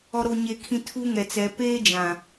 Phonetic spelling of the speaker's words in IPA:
ɔ˨ɾo˨ɲe˨kʰĩ˨ tʰu˦ŋɛ˨t͡sɛ˨˦ peː˦ d͡ʒã˨

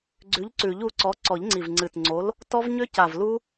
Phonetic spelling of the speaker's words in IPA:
ɡ͡ǀʉ˨˥ʎǀʉ˨˩˦ʎu˨˥ǀɔ˨˥ ǀɔ˨˩˦ʎŋ͡ǀi˨˩vŋ͡ǀɨ˨˩tŋ͡ǀo˨˥l | tɔ˦˥v ɲʏ˦˥ca˨˩v lu˦˥

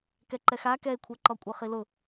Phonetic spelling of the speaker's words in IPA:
kɛǃɛxa kɛe̯kʷʰɛǃɔkʷʼɯ χilʊ

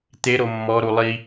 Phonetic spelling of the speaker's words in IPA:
t̪eɾo mːɔɾu lˠi

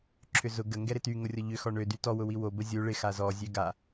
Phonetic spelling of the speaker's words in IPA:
ǁʰʏzʊ ɡə ŋɡɛɾɪty ŋʊrʲɔʎʏ xɔɳø dytɔ wʊwiwo bəzʲu ɭɪ xazɔ zʲøɡa

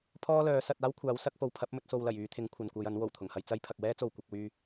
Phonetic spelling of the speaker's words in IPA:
pʰɔː˥lœː˨˥ sɐ˨˥t̚ aː˥wkʷʰaː˨˥wsɐ˨˥k̚fo˨w pʰɐ˨˥p̚mɵ˧t̚so˨wlɐ˨˩j yː˧t̪ʰɪ˨˥ŋ kʷʰɐ˨nkʷɐ˧j ɐ˨˥n wo˨˩wt̪ʰʊ˨˩ŋhɐ˧j t͡sɐ˥j pʰɐ˨k̚wɛː˥t͡so˨w kʷɪ˨˥k̚wyː˥

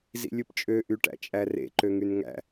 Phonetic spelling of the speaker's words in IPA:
zḭlʲɯpt͡ʃʼø ʔyʈæ̰t͡ʃʼærḛ ǃøŋynŋæ̰

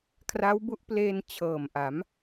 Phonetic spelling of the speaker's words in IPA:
kʰra˦˥wbu˦˥ʔpleː˧n t͡ɕʰɤː˨˩mʔa˩˦m

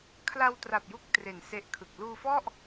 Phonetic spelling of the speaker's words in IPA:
kʰla˧w tra˨˩p̚ju˦˥k̚ tre˨˩nse˦˥ʔkʰɯ˨˩k̚ luː˧fɔ˥˩ʔ

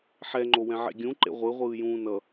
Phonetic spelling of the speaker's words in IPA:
ħɛ ŋ͡ǃowɛ̃ʕḛɡʲũ ǃḛʁʷɯ ʁʷɯːjũːnʌ

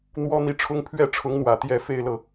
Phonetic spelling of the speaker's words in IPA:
n̪wɔ˥n̪i˥˩ʈ͡ʂʰʊ˥ŋ pʰɥɛ˥˩ʈ͡ʂʰʊ˧˥ŋn̪wä˨˩ t̪jɛ˥˩fe˥ɪ̯lɤ˨

